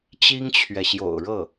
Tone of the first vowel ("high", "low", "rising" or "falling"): high